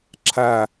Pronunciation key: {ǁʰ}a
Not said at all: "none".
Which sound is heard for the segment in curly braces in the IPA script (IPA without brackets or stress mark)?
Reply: ǁʰ